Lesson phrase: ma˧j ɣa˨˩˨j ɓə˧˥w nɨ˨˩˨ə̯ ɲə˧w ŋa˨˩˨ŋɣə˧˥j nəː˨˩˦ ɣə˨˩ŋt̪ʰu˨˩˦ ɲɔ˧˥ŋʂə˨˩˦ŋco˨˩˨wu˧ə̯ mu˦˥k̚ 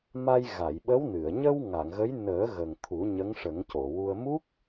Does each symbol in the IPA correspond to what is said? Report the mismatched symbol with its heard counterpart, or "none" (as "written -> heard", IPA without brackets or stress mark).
ɔ˧˥ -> ə˧˥